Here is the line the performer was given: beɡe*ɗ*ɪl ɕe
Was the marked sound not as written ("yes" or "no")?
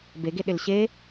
no